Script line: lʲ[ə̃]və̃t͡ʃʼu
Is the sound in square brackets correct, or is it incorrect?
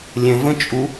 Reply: correct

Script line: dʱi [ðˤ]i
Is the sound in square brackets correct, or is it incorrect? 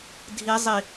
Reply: incorrect: zˤ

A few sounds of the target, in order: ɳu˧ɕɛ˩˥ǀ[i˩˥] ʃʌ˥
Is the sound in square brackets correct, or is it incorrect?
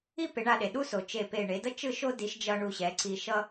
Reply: incorrect: i˧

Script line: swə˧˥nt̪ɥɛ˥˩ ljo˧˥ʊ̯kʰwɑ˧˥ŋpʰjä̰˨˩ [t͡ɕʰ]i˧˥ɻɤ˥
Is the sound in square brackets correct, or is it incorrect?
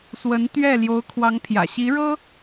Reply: incorrect: ɕ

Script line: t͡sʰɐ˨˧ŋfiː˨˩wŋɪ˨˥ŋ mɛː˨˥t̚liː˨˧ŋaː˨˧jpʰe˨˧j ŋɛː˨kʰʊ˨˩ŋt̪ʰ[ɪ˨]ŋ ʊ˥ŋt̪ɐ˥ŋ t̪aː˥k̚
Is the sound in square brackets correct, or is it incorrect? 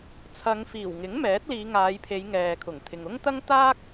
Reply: correct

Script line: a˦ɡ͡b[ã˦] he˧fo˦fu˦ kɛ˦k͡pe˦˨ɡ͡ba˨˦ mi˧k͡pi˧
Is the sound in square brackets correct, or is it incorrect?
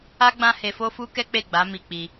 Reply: correct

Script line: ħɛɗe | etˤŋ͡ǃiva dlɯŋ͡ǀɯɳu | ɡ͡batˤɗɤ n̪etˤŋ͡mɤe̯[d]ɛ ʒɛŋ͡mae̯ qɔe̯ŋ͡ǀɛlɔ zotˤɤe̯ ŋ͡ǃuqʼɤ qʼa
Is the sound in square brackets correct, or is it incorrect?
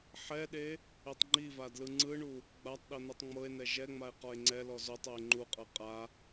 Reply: incorrect: n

